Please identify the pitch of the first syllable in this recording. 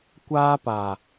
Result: high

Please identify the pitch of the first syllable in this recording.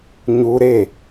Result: high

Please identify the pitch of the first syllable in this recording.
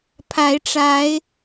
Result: rising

